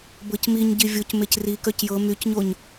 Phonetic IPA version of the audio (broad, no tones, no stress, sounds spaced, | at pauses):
b ɤ c m i ɲ ɟ i vʲ o c m e c r i k œ c j ɤ m y c ɲ o ɲ